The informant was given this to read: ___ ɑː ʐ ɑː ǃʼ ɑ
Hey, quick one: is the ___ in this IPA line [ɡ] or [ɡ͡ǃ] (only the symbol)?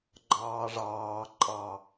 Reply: ɡ͡ǃ